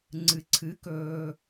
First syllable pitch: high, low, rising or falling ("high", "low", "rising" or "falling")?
low